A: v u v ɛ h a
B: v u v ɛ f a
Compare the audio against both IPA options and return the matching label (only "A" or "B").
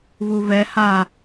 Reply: A